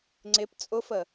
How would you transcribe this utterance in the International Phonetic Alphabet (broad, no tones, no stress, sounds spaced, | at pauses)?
ŋ͡ǀ ɪ p t͡sʼ ʊ f ə